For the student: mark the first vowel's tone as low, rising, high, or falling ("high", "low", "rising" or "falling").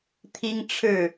high